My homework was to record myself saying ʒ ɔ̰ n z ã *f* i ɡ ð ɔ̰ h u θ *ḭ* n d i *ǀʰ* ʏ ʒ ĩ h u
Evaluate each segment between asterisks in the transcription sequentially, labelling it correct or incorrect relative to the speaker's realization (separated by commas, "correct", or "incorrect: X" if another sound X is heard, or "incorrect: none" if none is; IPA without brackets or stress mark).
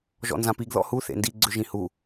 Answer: incorrect: p, incorrect: ḛ, incorrect: ɡ͡ǀ